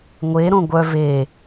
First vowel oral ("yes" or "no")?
yes